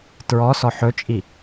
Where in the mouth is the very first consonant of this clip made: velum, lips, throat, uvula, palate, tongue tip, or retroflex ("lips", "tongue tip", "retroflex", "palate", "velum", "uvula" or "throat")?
tongue tip